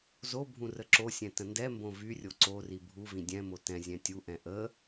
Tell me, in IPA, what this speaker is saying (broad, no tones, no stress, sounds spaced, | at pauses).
z o bʱ ũ r ə ǁ o sʲ ɛ̃ t ə̃ n d ɛ m b õ v y rʲ o ǀ o r i bʱ u v ĩ dʲ ɛ̃ m o t ɛ̃ zʲ ɛ̃ tʲ u ʔ ɛ̃ ʔ ə